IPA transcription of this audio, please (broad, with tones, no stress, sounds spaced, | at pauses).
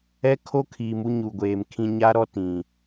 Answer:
ɛ˦ kʰ o˦ kʰ iː˨ m u˦ ɲ u˨ ɡʷ eː˨ m kʰ ĩ˦ ɲ a˦ ɾ ɔ˦ t ĩ˨